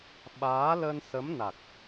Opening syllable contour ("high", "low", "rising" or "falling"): rising